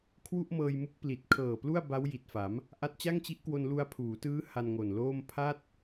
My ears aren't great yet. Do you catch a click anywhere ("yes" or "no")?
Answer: no